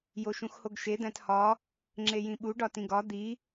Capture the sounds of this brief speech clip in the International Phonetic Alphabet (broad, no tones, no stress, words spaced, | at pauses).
joʃũxhoɡʃe d̪æ̃thɒ | ŋ͡ǁejĩɓu ɖɒtĩɡɒ d̪i